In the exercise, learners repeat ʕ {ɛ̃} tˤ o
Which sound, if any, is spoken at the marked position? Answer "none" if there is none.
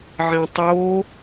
ɛ̃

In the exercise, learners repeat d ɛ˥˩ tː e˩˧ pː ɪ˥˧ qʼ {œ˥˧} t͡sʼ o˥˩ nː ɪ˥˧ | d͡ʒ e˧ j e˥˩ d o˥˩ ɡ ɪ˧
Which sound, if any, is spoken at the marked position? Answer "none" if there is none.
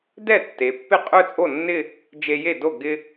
œ˥˧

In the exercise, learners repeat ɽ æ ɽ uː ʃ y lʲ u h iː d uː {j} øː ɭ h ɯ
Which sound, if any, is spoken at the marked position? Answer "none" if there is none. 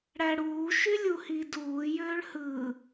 j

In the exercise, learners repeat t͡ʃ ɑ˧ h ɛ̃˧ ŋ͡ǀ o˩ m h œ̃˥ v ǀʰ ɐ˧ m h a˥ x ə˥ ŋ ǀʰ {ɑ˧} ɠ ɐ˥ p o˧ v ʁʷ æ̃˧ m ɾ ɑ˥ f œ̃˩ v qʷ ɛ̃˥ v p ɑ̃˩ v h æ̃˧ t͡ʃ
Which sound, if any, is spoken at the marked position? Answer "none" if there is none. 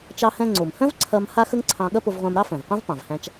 ɑ̃˧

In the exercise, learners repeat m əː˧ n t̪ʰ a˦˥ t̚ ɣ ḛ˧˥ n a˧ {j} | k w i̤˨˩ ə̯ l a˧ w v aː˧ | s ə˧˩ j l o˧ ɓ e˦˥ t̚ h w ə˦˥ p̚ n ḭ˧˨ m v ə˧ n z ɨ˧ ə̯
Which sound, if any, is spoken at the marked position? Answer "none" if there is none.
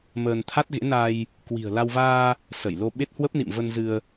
j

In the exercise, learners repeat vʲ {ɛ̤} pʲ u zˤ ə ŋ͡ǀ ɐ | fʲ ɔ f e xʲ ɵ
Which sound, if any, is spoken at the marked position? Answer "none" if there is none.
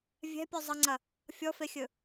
ɛ̤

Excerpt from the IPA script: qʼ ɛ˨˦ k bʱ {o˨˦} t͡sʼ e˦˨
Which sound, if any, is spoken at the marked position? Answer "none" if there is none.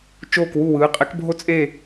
o˦˨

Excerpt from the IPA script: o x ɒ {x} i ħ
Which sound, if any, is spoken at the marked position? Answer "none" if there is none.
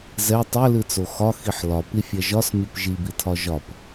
x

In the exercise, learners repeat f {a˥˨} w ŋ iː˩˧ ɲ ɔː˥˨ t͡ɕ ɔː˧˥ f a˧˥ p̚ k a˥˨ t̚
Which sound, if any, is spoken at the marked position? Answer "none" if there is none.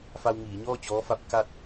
a˧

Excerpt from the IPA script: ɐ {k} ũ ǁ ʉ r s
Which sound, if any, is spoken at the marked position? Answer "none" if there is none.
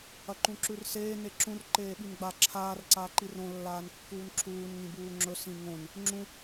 ǃ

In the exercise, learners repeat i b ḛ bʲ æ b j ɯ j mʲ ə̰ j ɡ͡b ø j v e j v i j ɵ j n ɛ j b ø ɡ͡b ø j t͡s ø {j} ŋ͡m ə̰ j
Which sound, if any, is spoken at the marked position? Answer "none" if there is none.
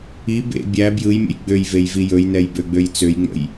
j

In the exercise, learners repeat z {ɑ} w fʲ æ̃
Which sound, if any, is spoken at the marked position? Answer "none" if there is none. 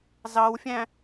ɑ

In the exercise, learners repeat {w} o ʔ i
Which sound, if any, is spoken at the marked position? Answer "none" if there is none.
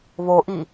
β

